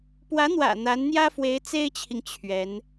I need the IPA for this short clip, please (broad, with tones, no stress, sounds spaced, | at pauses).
p w ä˧˥ n̪ w ä̰˨˩ n̪ a˧˥ n n̪ j ä˥ f w e˧˥ ɪ̯ t͡s e˥ ɪ̯ t͡ɕʰ i˨ ŋ t͡ɕʰ ɥ ɛ˧˥ n